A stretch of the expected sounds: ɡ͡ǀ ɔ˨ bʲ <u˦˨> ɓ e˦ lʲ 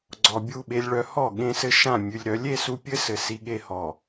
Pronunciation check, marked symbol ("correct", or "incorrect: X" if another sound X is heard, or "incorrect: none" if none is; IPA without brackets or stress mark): correct